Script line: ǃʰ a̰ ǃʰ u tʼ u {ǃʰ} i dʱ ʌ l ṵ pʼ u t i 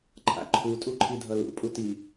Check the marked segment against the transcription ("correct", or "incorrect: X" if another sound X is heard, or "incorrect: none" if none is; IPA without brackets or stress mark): correct